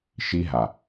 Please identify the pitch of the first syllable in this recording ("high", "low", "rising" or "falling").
high